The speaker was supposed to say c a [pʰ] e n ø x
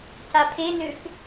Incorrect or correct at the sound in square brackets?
correct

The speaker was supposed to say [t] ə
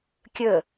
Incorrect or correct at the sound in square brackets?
incorrect: kʲ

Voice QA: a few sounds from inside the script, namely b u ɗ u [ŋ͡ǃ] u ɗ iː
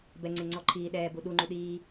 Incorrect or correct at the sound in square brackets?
correct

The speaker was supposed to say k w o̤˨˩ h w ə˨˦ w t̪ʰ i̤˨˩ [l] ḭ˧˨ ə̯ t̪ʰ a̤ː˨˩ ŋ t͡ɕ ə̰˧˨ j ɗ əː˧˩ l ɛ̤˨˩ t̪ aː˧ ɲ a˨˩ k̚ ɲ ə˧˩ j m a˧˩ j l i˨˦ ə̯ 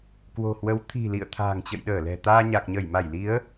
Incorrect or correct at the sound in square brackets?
correct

